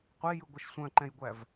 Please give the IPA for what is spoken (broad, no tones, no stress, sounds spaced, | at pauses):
qʷ e j ɯ ɡʷ ɛ ʃ sʷ œ̃ ǃ ɛ̃ j ɡʷ æ v